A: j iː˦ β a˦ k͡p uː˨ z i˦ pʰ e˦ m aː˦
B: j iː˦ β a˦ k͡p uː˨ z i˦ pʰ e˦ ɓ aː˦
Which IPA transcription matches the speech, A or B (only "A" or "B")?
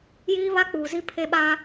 B